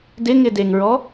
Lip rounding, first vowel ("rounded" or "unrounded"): unrounded